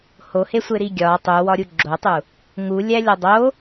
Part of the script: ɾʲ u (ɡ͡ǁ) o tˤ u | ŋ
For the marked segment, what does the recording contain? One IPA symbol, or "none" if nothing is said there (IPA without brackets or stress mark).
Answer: ɡ͡ǁ